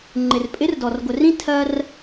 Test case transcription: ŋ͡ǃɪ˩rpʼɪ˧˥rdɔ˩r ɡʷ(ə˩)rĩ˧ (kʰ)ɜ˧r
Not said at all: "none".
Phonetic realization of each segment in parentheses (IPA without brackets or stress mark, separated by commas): ə˩, tʰ